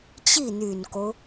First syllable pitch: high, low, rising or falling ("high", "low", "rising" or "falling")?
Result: falling